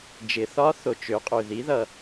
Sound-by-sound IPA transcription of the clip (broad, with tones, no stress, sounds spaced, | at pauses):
d͡ʒ ɪ˩˧ θ ɒ˧˥ θ o˩ t͡ʃ ø˩˧ qʼ ø˩ ð i˩˧ ð ʌ˩